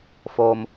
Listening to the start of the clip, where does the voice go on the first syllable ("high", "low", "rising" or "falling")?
high